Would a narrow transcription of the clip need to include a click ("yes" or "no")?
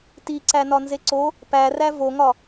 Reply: yes